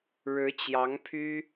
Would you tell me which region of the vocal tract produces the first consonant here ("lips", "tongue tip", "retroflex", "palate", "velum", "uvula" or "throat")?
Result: retroflex